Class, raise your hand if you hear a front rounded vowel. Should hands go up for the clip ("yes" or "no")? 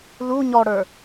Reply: no